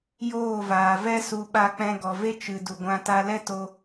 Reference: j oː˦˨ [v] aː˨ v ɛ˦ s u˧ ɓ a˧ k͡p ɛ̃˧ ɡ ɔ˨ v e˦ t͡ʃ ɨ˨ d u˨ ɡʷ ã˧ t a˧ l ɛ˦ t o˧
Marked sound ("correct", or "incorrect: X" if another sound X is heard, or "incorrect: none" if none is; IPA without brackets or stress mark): correct